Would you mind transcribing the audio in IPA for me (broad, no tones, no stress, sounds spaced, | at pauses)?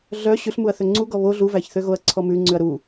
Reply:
ɮ œ ɕ ʉ ɬ m u ɐ̯ θ ø ŋ͡ǀ u ɡ ɔ β o ɮ u v æ ç θ ø ɣ o ɐ̯ ǀʰ ɔ m ʉ ŋ͡ǀ ʉ ɐ̯ ɾ u